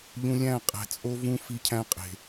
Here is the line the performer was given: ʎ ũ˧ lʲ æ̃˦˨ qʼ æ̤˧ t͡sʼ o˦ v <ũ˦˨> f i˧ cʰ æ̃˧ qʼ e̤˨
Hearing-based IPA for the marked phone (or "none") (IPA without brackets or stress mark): ũ˦